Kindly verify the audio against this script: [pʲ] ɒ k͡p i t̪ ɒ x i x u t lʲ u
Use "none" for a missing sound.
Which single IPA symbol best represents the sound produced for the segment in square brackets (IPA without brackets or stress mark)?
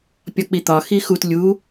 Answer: pʲ